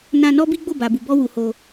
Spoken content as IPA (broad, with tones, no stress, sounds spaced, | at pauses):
n ã˧ n ɔ˦ b i˦ ɡ͡b o˦˨ b a˨ b u˨ b ɔ˧ w u˨ h o˧